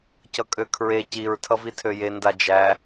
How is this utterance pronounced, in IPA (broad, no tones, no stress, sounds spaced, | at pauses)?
c ʌ kʼ ø kʰ ɹ e c i ɹ tʰ ʌ v i tʰ ø j e n d a d͡ʒ æ